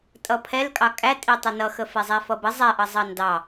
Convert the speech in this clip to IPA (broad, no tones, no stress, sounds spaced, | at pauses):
tʼ ʌ pʰ ɛ l kʼ ɑ kʼ æ tʼ i tˤ ə n ʌ x ə f ɛ zˤ æ f ʌ b ə zˤ ɛ ʔ ʌ zˤ ɑ n d ɑ